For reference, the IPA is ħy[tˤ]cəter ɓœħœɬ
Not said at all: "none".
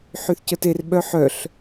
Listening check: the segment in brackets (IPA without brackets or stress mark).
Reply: θ